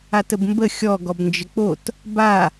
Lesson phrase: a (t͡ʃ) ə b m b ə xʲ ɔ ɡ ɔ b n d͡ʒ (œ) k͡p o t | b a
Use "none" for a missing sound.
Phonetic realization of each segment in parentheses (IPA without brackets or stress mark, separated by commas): t, ə